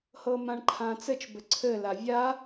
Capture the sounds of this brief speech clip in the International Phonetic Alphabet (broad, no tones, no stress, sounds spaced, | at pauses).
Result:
h ɤ m ã ɳ ǃʰ ã t͡s ɘ t͡ʃ b ɘ ǀʰ ɘ l a vʲ a